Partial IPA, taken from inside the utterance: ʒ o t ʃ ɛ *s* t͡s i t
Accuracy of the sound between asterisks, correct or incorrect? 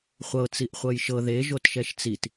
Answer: incorrect: ʃ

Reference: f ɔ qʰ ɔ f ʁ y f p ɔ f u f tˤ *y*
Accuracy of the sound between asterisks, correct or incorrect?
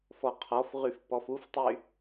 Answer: correct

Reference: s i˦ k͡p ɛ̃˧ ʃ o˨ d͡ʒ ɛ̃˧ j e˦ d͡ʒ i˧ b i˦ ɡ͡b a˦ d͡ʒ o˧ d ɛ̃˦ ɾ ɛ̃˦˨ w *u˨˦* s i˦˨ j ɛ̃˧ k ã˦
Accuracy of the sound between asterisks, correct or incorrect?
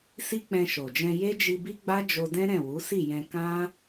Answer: correct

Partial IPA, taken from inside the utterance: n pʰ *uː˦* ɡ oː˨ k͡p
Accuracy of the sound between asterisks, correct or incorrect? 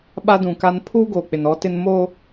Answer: correct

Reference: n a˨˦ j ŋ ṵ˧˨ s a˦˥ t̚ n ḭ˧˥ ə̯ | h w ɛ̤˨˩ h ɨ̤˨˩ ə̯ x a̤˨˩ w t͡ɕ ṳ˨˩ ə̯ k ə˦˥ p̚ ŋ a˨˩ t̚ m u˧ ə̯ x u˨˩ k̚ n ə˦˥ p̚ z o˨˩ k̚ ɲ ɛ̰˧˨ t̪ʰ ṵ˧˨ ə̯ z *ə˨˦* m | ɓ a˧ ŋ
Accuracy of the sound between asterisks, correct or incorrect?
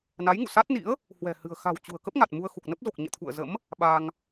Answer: incorrect: ə̰˧˥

